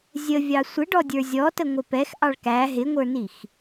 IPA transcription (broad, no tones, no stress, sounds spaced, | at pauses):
zʲ ə vʲ ɑ sʷ ɪ ɖ ɔ dʲ ə˞ zʲ ɔ t ə ŋʷ ɪ p ɛ x ʔ ɑ ɭ k æ ɦ ɪ ŋʷ ə˞ n i x